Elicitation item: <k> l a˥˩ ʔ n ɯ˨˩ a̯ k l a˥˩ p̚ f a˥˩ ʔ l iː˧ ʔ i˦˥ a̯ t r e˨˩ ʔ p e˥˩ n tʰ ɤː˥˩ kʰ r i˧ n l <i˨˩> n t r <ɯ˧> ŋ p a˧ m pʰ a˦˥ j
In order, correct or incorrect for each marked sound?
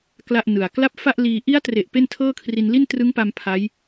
correct, incorrect: i˥˩, incorrect: ɯ˦˥

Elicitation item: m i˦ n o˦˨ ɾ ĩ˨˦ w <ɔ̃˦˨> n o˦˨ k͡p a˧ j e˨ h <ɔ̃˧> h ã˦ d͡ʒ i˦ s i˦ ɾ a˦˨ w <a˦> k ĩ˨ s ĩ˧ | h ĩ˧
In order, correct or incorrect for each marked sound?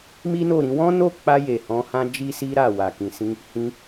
incorrect: ɔ̃˦, incorrect: ɔ̃˨˦, incorrect: a˨

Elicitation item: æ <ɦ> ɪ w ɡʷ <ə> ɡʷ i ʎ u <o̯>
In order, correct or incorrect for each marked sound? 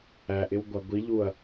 incorrect: ʔ, incorrect: ɑ, incorrect: ɐ̯

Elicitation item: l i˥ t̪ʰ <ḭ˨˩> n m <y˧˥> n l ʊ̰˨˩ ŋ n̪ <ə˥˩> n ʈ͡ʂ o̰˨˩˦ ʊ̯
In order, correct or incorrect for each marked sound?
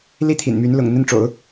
correct, correct, correct

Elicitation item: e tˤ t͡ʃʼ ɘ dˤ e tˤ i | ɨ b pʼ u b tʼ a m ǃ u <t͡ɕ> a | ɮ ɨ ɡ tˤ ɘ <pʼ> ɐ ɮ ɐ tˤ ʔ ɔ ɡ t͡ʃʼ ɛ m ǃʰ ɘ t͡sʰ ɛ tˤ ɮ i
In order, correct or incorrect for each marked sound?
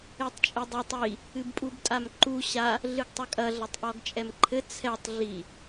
incorrect: ɕ, incorrect: kʼ

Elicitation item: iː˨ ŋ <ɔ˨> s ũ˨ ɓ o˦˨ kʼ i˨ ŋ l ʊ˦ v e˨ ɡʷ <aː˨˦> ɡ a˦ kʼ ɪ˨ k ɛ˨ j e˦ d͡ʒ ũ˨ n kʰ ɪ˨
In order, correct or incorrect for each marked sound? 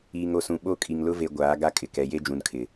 incorrect: o˨, correct

